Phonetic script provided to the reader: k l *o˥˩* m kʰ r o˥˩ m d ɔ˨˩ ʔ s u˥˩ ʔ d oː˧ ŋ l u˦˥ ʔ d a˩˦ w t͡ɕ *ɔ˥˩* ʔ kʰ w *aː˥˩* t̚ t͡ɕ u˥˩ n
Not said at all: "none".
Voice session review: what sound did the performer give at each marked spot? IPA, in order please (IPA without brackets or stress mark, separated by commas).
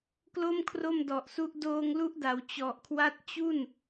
o˥˩, ɔ˨˩, a˥˩